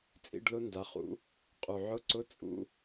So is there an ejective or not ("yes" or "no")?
yes